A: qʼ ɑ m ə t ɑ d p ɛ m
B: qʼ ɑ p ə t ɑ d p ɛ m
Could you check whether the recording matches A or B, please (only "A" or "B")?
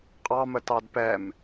A